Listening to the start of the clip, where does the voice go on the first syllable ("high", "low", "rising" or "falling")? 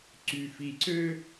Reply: low